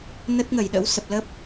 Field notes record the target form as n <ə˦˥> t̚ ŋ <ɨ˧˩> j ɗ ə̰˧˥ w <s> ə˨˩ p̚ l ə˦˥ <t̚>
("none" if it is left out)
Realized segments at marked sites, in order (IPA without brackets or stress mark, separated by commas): ə˦˥, ə˧˩, s, p̚